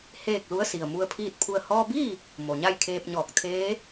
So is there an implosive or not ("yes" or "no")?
no